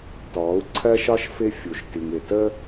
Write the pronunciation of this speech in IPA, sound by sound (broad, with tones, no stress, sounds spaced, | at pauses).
t ɔː˨˦ u̯ ǀʰ ɜ˦ ʃ ɒ˦ ʃ f ɪ˦ fʲ u˨ ʃ t i˨ ŋ ɪ˨ t ə˦